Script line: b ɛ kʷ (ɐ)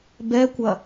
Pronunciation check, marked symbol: correct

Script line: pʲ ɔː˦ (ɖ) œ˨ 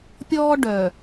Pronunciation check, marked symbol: correct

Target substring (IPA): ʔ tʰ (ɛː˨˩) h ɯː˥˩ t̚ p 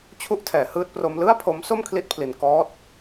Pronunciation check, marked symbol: incorrect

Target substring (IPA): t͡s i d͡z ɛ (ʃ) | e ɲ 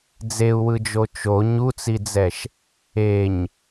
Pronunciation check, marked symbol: correct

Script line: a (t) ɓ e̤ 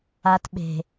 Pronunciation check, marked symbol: correct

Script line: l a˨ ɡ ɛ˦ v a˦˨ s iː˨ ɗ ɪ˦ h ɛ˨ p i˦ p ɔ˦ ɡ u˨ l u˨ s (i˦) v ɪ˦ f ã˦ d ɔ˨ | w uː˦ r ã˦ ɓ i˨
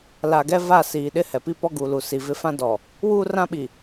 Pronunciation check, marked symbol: incorrect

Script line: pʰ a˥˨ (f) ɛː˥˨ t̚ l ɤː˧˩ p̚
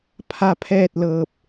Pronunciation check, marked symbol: incorrect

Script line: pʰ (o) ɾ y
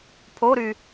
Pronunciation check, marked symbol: correct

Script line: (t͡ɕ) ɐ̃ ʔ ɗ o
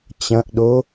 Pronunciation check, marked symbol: correct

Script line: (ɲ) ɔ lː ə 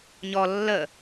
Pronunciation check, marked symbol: correct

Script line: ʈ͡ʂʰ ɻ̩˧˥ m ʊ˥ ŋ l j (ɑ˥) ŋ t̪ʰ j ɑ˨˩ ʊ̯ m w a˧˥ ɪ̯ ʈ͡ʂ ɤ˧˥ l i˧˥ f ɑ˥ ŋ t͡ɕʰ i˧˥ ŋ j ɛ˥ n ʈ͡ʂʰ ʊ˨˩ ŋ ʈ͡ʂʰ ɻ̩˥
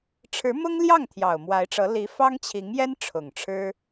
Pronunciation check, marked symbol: incorrect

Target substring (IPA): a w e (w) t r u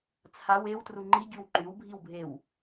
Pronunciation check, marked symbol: correct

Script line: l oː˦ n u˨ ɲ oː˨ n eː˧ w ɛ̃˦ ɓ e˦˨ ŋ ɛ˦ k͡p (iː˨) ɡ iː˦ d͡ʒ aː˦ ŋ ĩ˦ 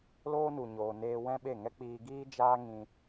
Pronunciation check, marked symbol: incorrect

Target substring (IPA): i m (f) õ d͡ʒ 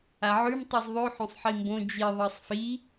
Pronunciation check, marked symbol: incorrect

